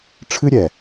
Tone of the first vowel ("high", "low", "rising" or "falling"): high